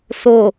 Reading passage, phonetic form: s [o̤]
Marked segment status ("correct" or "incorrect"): incorrect